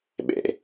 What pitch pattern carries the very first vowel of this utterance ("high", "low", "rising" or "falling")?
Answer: low